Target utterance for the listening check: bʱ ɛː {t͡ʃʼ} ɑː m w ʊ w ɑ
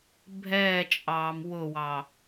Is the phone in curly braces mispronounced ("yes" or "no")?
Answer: no